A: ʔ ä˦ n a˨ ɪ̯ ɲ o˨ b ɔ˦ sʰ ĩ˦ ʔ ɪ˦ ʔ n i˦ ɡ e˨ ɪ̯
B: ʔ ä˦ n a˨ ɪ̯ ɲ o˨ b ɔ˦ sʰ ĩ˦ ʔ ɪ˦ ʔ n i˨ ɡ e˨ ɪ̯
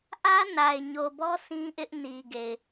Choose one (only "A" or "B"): B